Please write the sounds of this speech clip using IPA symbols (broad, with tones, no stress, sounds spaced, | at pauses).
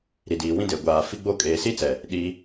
ɾ i˨ d iː˨ w ĩ˦ d e˨ ɡʷ aː˨ f i˦ ɡ͡b o˦ kʼ eː˨ s i˦ t͡s ɛ˨ | ɗ iː˦